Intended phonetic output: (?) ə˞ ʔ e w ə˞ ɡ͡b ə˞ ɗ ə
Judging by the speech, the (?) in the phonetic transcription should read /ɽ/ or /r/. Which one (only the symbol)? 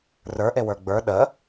r